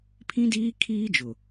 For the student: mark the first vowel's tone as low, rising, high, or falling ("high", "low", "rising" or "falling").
high